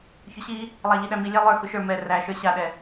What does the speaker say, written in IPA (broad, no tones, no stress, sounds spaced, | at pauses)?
ç ʊ ɕ i | lˠ æ ʎ i ɗ æ m i lʲ æ lˠ ə˞ x ʊ ʃ ə˞ m ɛ r æ ʃ ə˞ ɕ a ɗ ɛ